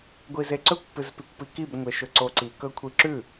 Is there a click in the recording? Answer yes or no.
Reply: yes